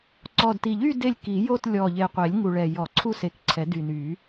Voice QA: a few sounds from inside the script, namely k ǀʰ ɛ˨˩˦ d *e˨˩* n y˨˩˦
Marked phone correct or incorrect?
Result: incorrect